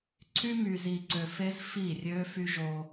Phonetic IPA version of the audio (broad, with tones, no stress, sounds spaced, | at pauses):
ǀʰ y˦ m y˨ z i˨ ǀ ø˨ f e˦ z f i˦˨ rʲ ø˦ f y˦ ʒ o˦